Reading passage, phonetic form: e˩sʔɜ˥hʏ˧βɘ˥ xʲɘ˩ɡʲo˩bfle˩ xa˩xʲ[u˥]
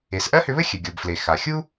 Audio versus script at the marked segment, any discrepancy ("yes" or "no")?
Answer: no